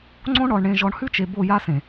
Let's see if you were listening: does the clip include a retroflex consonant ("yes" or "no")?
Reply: yes